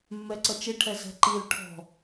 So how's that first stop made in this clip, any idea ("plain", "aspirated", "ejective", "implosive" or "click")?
click